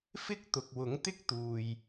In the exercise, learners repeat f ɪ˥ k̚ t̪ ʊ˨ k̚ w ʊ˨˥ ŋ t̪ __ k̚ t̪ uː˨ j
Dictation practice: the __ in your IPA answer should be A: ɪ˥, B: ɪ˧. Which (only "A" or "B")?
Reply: A